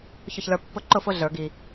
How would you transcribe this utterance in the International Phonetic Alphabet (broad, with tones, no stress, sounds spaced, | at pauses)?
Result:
ç ʊ˥˨ ç l ə˞˦ pː ʊ˦ ǃ ʊ˥˨ f ʊ˦ ɮ ə˞˨˩˦ ɡ i˨